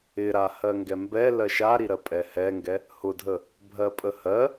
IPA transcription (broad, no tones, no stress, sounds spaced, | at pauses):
ɪ ɾ a h ɜ ŋ ɡ ɛ m b ɛ l ɜ ʃ a ɾ i ɾ ɜ pʼ ɛ h ɛ ŋ ɡ ɛ | h ʊ dʱ ə | bʱ ɜ pʼ ə h ɜ